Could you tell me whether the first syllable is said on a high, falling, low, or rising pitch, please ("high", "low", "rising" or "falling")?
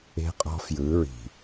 high